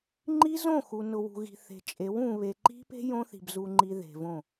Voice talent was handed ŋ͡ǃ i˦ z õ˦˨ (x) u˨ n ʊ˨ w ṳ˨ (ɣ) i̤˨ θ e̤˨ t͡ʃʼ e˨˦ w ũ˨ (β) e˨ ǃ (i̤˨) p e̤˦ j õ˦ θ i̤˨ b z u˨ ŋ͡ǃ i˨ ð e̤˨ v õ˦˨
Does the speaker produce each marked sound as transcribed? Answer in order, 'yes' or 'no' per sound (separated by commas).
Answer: yes, yes, yes, no